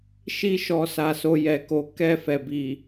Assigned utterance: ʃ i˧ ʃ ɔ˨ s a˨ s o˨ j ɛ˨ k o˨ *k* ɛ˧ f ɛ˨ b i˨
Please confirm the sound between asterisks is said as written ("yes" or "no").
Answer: yes